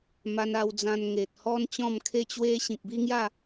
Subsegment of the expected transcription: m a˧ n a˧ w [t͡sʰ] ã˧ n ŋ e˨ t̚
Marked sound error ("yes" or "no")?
yes